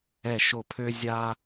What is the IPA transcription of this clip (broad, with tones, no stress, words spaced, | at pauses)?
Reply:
ɛ˧˩ʃo˧˩pʰø˦ zʲa˦